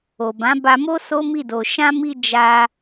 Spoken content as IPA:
o˨bã˨˦ba˧mo˦ so˦mi˦˨do˨ ʃã˧mi˧ d͡ʒa˧

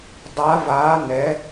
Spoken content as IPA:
dˤa˧˥vaː˧˥nɛ˧˥

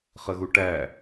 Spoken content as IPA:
χəɣuʈæ

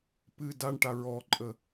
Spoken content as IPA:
pɨ daɳʈa ɹɔǃʼə

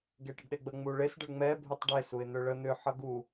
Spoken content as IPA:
ɡeʈəɖɗeɡ͡bə ŋ͡muɭes ɖəɭŋ͡mɛ bʱutˤɖe suɪ̯n̪ʏɭə n̪ʏ ħʌɡu

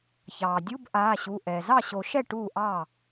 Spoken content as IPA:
çɑː˩ dʲu˧˥˧bʔaː˩˧˩ɕu˩˧˩ ʔɛː˩zɑ˥˩ɕo˨˩˦ʃɛ˥˩ ʈuː˥˩ʔɑː˥˩

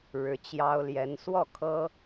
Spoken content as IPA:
ɻɻ̩˨˦t͡ɕjɑ˦ʊ̯ ljɛ˨˦n swɔ˥˨kʰɤ˦

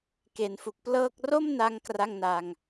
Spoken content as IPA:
ke˩˦nfu˨˩k̚ plɤː˥˩k̚ ro˥˩mna˧ŋ kra˥˩ŋna˧ŋ

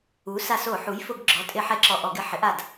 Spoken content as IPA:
u˩˥ sa˧˩so˧˩˧ ħu˩˥jfʊ˧˩˧ɡ ɡ͡ǁɔ˩˥tʼɪ˧˩˧ħɛ˧˩˧ ǁɔ˧˩ʔɔ˧˩˧ ɡɪ˧˩ħɪ˩˥ʔa˧˩d

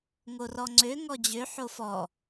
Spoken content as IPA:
ŋorɔŋ͡ǀø ŋɔd͡ʑø ħofɔ

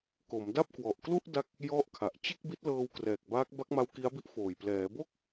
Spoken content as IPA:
ko˩˦mda˥˩p̚kwɔ˨˩ʔ klu˥˩ʔ da˦˥k̚ | jɔ˥˩ʔkʰa˨˩ʔ t͡ɕe˥˩k̚bi˦˥t̚lɤː˧w krɛː˨˩k̚baː˦˥k̚ba˦˥k̚ma˦˥w ki˦˥a̯bi˦˥ʔfoː˨˩j plɛː˩˦bo˥˩k̚

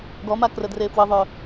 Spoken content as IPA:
ɡɔmakrə drefwəðˤœ

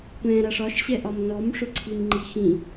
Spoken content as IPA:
kʷɛ̃ ɾaʂɒʃɕɛʔɒm nɔmʂɵǀʰim ŋ͡ǃixĩ

